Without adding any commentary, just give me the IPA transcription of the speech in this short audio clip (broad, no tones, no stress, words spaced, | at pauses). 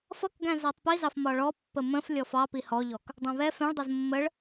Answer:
fʌkɡæ̃ zætˤpizɑf mɒɭɔ pːəmə̃f lʲɔfɑ pihɔʎɔk | dˤæ̃βɛ fɛ̃ɭdˤɜz mːəɭ